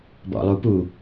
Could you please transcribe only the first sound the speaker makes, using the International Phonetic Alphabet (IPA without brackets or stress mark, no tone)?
b